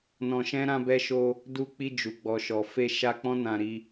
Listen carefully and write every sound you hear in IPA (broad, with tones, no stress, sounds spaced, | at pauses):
n ɔ̃˧ ʃ ɛ̃˦ ɾ ã˧ b ɛ˧ ʃ o˧ | d u˧ k͡p i˧ d͡ʒ u˨ ɡ͡b ɔ˨ ʃ ɔ˨ f e˧ ʃ a˧ k͡p ɔ̃˦ n ã˧ ɾ i˧